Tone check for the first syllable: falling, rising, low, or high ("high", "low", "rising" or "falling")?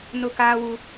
high